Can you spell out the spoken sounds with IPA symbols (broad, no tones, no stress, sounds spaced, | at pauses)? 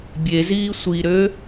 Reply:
bʲ e z iː sʷ i ɾ ø